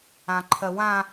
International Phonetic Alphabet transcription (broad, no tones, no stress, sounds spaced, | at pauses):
ã ǃʰ ɜ w ã